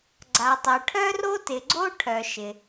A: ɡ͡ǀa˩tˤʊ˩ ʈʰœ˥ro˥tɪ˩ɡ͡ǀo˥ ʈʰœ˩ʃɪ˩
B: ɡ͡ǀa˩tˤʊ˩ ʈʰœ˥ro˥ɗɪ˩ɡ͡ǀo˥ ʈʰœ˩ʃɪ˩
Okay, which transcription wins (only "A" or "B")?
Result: A